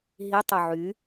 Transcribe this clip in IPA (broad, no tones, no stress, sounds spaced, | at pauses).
ɦ i tˤ ø ʕ y